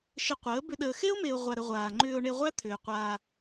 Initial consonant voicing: voiceless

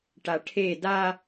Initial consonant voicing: voiceless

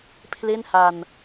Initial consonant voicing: voiceless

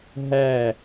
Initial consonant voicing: voiced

